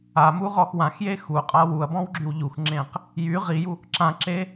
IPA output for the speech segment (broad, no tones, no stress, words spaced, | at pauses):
amuʁɔx wãxje xuqʼa wuɐ̯bɔ̃wɡ͡ǁyw ʎuxŋ͡ǁẽq | jy ʁiju | ǁãǁe